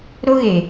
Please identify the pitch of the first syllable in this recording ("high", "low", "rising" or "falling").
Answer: high